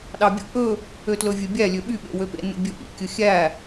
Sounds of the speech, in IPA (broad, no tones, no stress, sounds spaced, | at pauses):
ɗ ɑ bʲ ṵ ʔ ɵ | ø t l ɵ vʲ ɛ bʲ æ lʲ ø ɓ y ɓ ḛ w ø p ḛ n ṵ bʲ ɵ ʔ ḭ kʲ ɵ xʲ æ